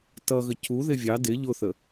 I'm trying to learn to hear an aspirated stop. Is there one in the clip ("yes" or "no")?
no